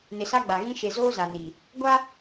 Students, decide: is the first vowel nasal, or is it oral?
oral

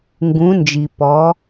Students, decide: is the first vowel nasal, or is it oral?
nasal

